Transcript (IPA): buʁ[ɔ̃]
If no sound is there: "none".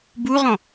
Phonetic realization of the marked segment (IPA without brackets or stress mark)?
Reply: ɔ̃